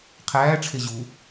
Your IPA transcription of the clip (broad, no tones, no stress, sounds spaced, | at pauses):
qʰ æː ʈ͡ʂʰ e ʑ u